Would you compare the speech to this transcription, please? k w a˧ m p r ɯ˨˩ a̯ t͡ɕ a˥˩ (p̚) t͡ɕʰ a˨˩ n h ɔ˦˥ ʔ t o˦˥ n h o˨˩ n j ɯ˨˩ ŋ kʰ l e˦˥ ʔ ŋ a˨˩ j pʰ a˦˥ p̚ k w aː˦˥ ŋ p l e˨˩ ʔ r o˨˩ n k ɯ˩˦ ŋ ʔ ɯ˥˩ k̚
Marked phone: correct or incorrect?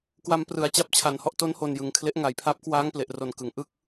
correct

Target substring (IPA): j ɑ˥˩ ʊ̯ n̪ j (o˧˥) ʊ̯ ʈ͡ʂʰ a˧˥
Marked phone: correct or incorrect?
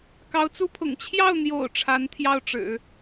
incorrect: o̰˨˩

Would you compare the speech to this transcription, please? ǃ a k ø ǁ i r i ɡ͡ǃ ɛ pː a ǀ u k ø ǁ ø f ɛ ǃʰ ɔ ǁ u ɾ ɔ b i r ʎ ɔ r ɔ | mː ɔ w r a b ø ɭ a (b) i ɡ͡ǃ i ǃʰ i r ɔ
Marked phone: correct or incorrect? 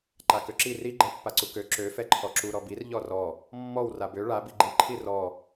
correct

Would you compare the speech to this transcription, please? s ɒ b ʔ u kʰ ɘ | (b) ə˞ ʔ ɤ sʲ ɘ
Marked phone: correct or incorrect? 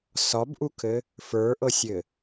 incorrect: f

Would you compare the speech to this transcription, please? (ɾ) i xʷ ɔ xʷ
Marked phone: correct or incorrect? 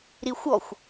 correct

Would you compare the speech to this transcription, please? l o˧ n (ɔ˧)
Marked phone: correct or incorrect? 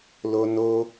incorrect: o˧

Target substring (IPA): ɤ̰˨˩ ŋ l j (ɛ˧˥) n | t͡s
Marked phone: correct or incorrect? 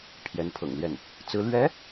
incorrect: ɛ˥˩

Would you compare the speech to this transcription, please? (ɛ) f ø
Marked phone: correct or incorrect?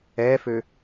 correct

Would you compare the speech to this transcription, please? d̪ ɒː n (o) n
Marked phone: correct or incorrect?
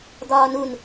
incorrect: u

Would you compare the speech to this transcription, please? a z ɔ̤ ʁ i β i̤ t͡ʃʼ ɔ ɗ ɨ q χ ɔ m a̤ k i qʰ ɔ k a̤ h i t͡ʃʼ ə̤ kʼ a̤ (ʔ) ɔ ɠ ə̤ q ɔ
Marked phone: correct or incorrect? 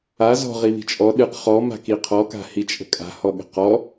incorrect: h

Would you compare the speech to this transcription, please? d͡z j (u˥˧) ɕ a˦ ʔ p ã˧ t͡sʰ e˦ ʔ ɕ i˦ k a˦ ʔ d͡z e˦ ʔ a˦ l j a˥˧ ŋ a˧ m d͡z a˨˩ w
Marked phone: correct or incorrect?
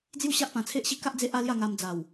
correct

